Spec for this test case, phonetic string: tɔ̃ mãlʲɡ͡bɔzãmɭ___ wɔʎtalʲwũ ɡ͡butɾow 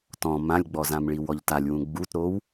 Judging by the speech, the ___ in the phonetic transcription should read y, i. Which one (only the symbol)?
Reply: i